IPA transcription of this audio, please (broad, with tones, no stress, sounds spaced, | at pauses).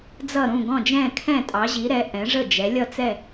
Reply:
d͡z ʌ˧˩ ɾ ũ˧˩ ɡ ɔ̃˧˩ d͡ʒ ɛ̃˧˩ kʰ ɛ̃˧˩ tʼ ɑ˩˧ ʑ i˩˧ ɾ ɛ˩˧ ʔ ɛ̃˩˧ ʐ ə˧˩ d͡ʒ ɛ˩˧ lʲ ʌ˧˩ t͡s ɛ˧˩